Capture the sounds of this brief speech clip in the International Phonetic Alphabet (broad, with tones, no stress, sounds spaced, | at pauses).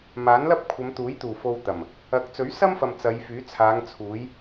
m aː˨˥ n l ɐ˥ p̚ kʷʰ ɐ˨˧ m t̪ uː˨˥ j t̪ uː˨˩ f o˧ w t̪ ɐ˨˩ m | ɐ˨˥ k̚ t͡s ɵ˨˥ ɥ s ɐ˥ m f ɐ˨ m t͡s ɐ˨˧ j f yː˨˥ t͡sʰ aː˨˧ ŋ t͡sʰ uː˨˧ j